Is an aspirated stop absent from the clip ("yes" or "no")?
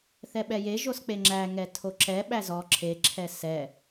no